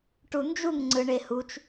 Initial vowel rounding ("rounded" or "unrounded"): rounded